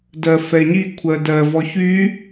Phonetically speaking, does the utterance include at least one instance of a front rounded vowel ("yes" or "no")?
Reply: yes